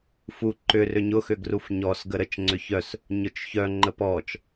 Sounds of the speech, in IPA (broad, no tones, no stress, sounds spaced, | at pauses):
f u ǃ ʏ r ʏ ɲ ʊ x ʏ ɡ r u f ɲ ɔ s ɡ ə ɾ ə t͡ʃ ŋ͡ǀ ʏ ç œ s | ɲ ʊ t͡ʃ ç œ ŋ͡ǃ ə p ɔ t͡ʃ